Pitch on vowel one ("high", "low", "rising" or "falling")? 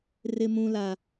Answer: high